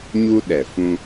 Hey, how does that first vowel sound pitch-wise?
high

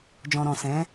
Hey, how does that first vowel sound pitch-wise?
low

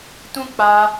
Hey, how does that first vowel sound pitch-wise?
high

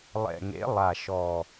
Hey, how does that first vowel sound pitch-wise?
low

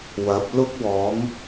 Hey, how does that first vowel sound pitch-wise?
rising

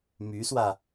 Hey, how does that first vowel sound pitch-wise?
rising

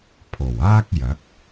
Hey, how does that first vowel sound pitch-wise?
low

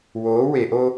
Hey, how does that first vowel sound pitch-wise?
rising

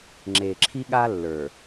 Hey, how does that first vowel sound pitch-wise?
low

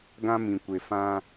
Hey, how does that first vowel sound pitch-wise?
high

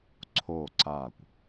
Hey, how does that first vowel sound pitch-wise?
falling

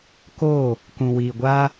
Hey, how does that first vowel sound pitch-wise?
falling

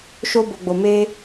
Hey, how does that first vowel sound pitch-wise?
high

